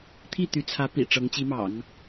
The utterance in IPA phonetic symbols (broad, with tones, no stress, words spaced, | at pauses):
t̪ʰi˥˩t̪y˧˥t͡sʰä˧˥ pḭ˨˩ ʈ͡ʂɤ˧˥ŋt͡ɕi˧˥mɑ̰˨˩˦ŋ